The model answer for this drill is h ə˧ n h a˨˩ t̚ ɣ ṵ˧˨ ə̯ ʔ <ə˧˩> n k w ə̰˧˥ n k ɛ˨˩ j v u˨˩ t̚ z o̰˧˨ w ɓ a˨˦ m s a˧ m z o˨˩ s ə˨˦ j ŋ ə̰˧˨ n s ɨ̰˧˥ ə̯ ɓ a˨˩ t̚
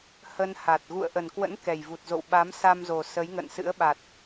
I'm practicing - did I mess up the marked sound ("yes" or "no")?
yes